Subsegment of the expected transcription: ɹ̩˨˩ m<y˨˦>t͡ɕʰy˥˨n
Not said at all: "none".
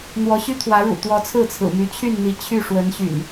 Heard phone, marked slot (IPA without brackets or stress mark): y˨˦